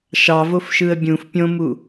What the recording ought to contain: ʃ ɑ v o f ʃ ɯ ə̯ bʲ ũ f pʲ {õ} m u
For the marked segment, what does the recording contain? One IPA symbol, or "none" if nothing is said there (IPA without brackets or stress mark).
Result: õ